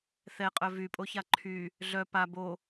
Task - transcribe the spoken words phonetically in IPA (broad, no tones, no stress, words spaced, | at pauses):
θɛqʼœ vypʼoça ǃʰy | ɮœ pa bo